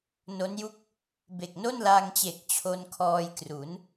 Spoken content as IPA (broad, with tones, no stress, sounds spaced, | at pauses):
n o˦˥ n j u˥˩ k̚ | b e˨˩ k̚ n o˥˩ n l aː˧ ŋ t͡ɕ e˨˩ k̚ t͡ɕʰ o˧ n kʰ ɔː˧ j k r u˩˦ n